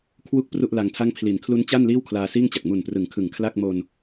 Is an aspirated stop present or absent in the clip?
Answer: present